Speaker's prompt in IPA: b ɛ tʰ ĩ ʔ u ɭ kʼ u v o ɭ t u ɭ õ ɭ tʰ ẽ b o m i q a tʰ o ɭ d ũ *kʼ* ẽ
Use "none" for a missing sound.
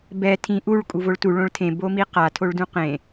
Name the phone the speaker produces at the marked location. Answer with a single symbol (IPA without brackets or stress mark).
q